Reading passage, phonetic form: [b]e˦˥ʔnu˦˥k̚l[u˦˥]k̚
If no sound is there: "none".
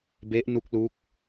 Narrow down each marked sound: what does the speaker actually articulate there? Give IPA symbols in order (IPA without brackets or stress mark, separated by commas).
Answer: b, u˦˥